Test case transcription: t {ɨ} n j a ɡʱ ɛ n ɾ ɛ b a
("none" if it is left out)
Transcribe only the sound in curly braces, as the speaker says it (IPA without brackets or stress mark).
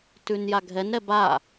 ʉ